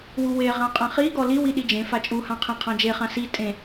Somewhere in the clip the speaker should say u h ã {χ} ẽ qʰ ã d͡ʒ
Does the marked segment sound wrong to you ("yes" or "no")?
yes